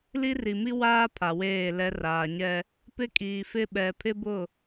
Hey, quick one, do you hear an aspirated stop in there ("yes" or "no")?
yes